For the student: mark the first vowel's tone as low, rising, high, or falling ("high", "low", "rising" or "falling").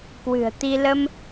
low